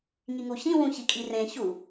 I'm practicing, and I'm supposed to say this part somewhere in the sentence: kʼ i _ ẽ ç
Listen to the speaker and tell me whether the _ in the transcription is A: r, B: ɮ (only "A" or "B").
A